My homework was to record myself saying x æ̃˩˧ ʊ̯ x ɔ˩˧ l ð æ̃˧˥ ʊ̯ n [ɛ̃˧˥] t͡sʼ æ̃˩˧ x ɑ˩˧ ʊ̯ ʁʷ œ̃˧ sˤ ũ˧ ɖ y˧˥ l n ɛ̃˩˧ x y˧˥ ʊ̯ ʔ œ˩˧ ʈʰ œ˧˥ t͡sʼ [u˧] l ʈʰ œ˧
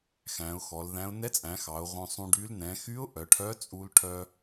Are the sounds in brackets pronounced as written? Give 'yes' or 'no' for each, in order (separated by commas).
no, yes